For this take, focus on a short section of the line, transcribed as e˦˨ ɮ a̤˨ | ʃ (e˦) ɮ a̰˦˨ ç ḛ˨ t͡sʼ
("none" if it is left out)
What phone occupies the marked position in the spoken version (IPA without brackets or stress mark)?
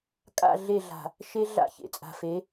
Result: e˦